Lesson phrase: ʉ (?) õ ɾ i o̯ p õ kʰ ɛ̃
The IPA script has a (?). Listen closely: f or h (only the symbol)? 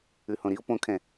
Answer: h